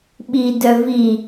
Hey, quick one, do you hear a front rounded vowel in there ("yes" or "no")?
yes